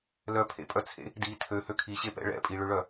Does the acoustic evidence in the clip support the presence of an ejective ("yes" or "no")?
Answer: yes